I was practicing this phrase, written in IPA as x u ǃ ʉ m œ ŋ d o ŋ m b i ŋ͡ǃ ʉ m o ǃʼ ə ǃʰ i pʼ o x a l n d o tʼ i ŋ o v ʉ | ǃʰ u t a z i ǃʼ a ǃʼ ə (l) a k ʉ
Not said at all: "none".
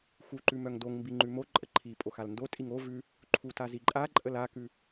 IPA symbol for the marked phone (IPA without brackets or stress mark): l